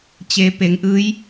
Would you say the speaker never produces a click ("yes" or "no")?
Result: yes